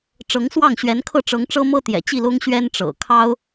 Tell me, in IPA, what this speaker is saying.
ʈ͡ʂɤ˧˥ŋswɑ˥˩ŋ ɕɥɛ˧˥nkʰɤ˥˩ ʈ͡ʂɤ˧˥ŋʈ͡ʂɤ˥mɤ˥ t̪jɛ̰˨˩t͡ɕi˥˩lʊ˥ŋ ɕɥɛ˥nʈ͡ʂɤ̰˨˩kʰɑ˥ʊ̯

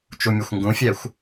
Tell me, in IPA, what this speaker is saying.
t͡ʃumʲɘxʷŋɡũfʲɛxʷ

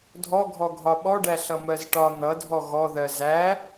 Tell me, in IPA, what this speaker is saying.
dʱɔɡʱɔɡʱɒ ɓɔɖæ ɬʌmɜzʈɒ n̪ʌdʱɔ ɣɔðɜ zæ

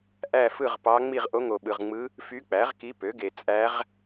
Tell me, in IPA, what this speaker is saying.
ʔæ˥˧fɯ˥˧ʁpɑ˧˥ ŋ͡mi˥˧ʁ ʔo˧˥ŋo˨ɓɯ˨ʁŋ͡mɯ˧˥ | fy˧˥k͡pæ˩˥ʁki˧˥ pø˩˥ɡe˨ t͡sʼæ˧˥ʁ

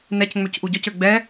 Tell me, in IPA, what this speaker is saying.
nɛcŋ͡møc ʔuɟɔcø ɡ͡bɛ

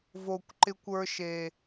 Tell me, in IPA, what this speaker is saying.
vo˨kʷǃɪ˧kʷ ə˞˧ʃe˨

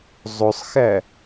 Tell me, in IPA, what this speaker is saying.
zˤosˤxæ

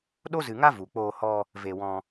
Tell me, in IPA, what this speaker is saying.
ɗo˦zɨ˨ŋa˦ vu˨k͡poː˧hɔ˧ | ve˧wɔ̃˧

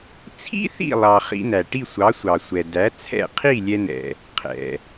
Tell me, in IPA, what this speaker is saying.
t͡sʰḭ˥θḭ˥˩lˠɑ˩ χḭ˧næ˩ ʈi˥˩sʷɑ˩˥sʷɑ˩sʷɛ˩ dæ˩˥t͡sʰɛ̰˥˩ qʰi˥˩lʲɛ˧nɛ̰˩ | qʰɛ̰˩

